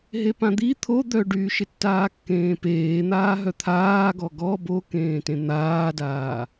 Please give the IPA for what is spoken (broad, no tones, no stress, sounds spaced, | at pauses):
ɦ e p ã d̪ i t̪ʰ o d̪ œ ɖ yː ʃ ɪ tː aː kː ẽː p eː n̪ aː ɦ œ t̪ʰ aː ɡ ɔ ɡ ɔ b o k ẽː t ẽ n̪ aː d aː